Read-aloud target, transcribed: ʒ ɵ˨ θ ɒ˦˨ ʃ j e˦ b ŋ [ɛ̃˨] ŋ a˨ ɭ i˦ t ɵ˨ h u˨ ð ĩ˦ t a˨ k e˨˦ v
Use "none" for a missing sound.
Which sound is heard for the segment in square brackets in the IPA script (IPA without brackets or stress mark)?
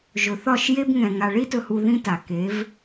ɛ̃˨